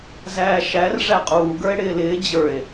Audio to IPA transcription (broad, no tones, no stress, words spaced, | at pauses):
zæːʃær ʐæqʼuː ɡə˞e̯ɽɪːlɪː d͡ʑə˞e̯